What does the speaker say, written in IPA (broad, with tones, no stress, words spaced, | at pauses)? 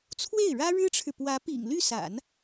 t͡sʰwe˥˩ɪ̯ɻä˥ɻɻ̩˥ʈ͡ʂʰɻ̩˨ pwä˧˥pḭ˨˩ŋly˥˩sa̰˨˩˦n